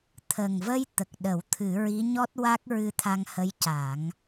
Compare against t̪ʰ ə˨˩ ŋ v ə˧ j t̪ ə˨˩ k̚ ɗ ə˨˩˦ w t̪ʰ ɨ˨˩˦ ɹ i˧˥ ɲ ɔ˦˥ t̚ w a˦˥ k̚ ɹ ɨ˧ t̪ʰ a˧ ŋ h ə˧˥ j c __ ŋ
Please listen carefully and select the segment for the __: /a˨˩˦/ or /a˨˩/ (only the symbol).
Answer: a˨˩˦